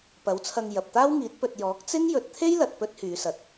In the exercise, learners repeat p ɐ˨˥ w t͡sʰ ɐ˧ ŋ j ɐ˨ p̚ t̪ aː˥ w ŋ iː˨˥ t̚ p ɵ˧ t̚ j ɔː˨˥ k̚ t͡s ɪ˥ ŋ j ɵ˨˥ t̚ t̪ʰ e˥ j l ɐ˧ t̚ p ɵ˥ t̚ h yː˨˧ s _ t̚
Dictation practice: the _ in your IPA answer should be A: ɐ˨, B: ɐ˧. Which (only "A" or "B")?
A